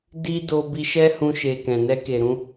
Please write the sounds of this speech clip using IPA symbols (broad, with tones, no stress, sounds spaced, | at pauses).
d i˦ d o˧ b i˧ ʃ ɛ˦ h ũ˧ ʃ e˨ k ɛ̃˨ n ɛ˧ k e˨ ɾ ũ˧